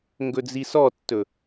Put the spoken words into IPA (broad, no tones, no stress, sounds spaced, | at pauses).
ŋ ɡ ɵ d͡z i s ɔ tː ɵ